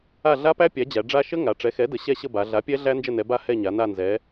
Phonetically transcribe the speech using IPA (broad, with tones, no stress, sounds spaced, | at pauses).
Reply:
a˦˨ ɮ a˦˥ p æ˦˥ pʲ æ˩˥ d͡ʑ æ˩˧ ɖ͡ʐ a˦˥ ʃ ə˦˥ ŋ a˩˧ ʈ͡ʂ ɛ˩˥ x ɛ˩˥ d ə˩˧ ɕ ɛ˦˨ ɕ ə˦˨ b a˩˧ ɮ a˩˥ pʲ ɛ˦˥ ɮ æ˦˥ n d͡ʒ ə˦˨ n ɛ˩˧ b a˦˨ h ɛ˦˨ ɲ a˩˧ n a˦˨ n z ɛ˩˧